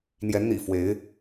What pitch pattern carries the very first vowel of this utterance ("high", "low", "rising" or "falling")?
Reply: rising